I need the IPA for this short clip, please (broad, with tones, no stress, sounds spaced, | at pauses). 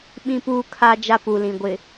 ɓ ĩ˦ p uː˦ kʰ a˦ d͡ʒ a˦ p u˨ l ĩ˨ ɡʷ ɪ˨